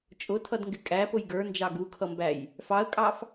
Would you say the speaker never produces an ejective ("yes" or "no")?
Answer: no